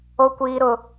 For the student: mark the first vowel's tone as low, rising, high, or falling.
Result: high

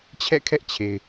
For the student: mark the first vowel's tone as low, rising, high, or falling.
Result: falling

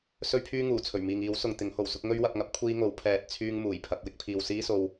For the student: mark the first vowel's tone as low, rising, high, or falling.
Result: high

